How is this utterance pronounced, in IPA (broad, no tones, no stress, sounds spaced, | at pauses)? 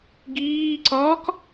ɡ iː ǀ ɒː k